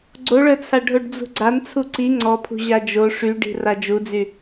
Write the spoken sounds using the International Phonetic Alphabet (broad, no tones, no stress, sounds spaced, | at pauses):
ɡ͡ǀ o ɭ œ t͡sʰ a ɖʱ o ɖ d͡z ṳ ɡ͡ǀ a n t͡sʰ u ǀ i ŋ͡ǀ ɔ pʰ ṳ ʑ a d͡ʒ o ʂ y ɖ i̤ r a d͡ʒ u d͡z y